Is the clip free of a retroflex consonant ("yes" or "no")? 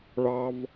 no